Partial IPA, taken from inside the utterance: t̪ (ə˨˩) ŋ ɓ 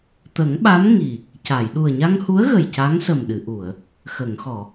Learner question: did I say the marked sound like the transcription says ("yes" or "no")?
no